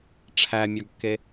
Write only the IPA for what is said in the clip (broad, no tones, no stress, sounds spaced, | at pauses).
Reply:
ʈ͡ʂʰ æ mʲ ɒ ɡ kː e